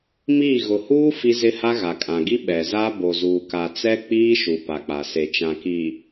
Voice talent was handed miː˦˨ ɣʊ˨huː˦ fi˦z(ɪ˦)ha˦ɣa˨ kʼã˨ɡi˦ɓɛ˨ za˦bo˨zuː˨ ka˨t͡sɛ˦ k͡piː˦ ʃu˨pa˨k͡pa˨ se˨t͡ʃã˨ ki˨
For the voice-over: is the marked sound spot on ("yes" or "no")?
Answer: yes